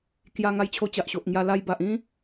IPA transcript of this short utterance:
k j a˧ ŋ a˧ j t͡ɕʰ o˧ t͡ɕ a˨ ʔ ɕ o˨ ʔ ŋ j a˧ l a˧ j b a˨ ʔ ĩ˦

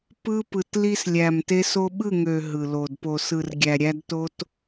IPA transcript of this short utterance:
p ɯ˦ p ɯ˨ t l i˧ s lʲ æ˨ m t e˧ s o˧ ɓ ɯ˦˨ ŋ ø˨ ɦ ɯ˨ l o˨ d p o˨ s ɯ˨ r ɡʲ æ˨ ɾʲ æ˧ d t o˧ t

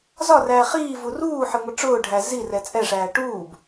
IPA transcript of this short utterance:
z ɒ r æː χ iː v u r uː ħ ɪ ŋʷ ɪ ʈ͡ʂ ʊː ɖʱ æ z i r ɛ t͡sʼ ɛ ʂ æː ʈ uː b

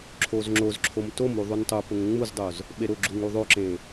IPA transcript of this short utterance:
ǁʰ o z ŋ͡ǁ o z ǁʰ o m t o m u ðˤ u n tˤ ʊ p ʊ ŋ ŋ͡m u z dˤ o z | ɓ e ɾ ʊ ɡ͡ǁ u ŋ u ðˤ o ǁ ẽ

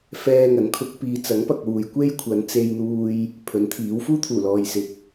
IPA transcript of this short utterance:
f ɛː˧ ŋ ɐ˨˥ n kʰ ʊ˧ k̚ p iː˧ t͡s ɐ˨˥ ŋ p ɐ˨ k̚ w uː˨ j kʷ e˥ j kʷʰ ɐ˨˧ n t͡s e˧ j n̪ uː˧ j | pʰ ɵ˨˥ n t̪ʰ iː˨˥ w f uː˥ t̪ʰ uː˨˩ l ɔː˨ j s ɪ˨ k̚

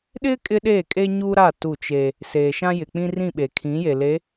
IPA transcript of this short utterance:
ɗ ɪ˦ kʼ ɪ˦ ɗ eː˦˨ kʼ e˦ ɲ u˦ ɾ a˦˨ t u˦˨ t͡ʃ e˦ | s eː˨ ʃ ã˦ j ɪ˨ k͡p ĩ˦ r ĩ˦˨ ɓ e˨ kʰ ĩ˨˦ j e˨ l e˨˦

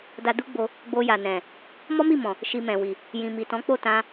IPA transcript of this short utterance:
d a˧ d u˦ ɡ͡b o˧ | ɡ͡b o˧ j a˨ n ɛ̃˨ | m ɔ˦ m i˦˨ m ɔ̃˨ | ʃ i˧ m ɛ̃˨ w i˨ | j ĩ˨ m i˨ t ɔ̃˨˦ k͡p o˦˨ t ã˧

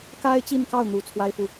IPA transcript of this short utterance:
k a˥ ɪ̯ t͡ɕ i˥˧ n k ɑ˥˩ ʊ̯ n̪ u˨˩ t͡sʰ w a˥ ɪ̯ f u˨

